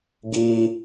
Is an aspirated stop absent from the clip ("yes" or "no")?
yes